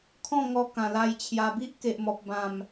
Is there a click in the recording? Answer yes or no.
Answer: no